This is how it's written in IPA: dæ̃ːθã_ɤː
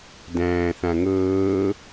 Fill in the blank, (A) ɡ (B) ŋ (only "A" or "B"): B